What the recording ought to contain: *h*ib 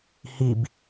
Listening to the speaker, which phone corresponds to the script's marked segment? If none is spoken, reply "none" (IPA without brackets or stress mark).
h